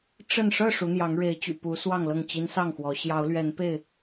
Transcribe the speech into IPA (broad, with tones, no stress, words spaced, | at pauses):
ʈ͡ʂə˥˨n ʂɤ˥˨ ʂu˨˦n̪jɑ˨˦ŋ ɻe˨˦ɪ̯t͡ɕy̰˨˩pu˨˦ swɑ˥˨ŋlɤ˥˨ŋ t͡ɕi˦n sɑ˥˨ŋxwɔ˨˦ ɕjɑ˨˦ʊ̯lɥɛ˨˦npe˥˨ɪ̯